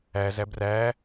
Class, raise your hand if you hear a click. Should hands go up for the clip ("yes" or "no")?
no